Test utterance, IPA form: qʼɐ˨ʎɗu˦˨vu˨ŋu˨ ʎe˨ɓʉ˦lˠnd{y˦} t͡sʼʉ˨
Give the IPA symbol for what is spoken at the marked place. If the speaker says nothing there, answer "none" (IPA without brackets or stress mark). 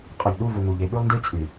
i˦